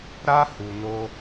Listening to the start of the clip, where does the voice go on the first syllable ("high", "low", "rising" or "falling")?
high